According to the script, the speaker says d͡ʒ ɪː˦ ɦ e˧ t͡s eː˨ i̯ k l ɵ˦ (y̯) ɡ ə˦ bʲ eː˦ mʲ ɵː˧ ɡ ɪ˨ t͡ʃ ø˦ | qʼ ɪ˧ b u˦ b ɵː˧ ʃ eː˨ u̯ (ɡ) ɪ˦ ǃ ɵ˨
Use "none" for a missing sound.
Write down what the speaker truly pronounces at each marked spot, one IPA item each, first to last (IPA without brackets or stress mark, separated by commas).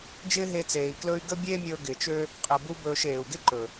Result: y̯, ɡ